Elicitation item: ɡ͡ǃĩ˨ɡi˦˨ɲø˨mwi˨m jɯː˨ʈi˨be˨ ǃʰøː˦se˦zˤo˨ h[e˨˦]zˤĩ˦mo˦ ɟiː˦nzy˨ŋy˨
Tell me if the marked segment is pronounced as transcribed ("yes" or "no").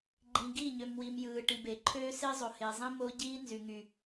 no